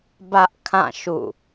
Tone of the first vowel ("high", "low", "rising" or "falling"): high